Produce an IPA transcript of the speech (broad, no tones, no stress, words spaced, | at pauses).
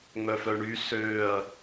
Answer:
ŋ͡mœfœɳy søːɐ̯